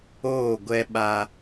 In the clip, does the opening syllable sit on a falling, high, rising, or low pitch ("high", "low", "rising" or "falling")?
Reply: falling